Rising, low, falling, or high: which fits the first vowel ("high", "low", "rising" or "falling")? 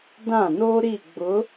falling